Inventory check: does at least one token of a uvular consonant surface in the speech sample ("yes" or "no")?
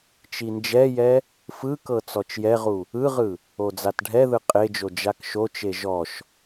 yes